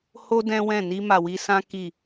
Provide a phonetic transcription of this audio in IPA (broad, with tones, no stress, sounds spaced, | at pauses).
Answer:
h o˦ d ɛ̃˦ w ɛ̃˦˨ n i˧ m a˨ w i˧ s ã˦ k i˦˨